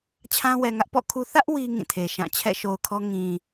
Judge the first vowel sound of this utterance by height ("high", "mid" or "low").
low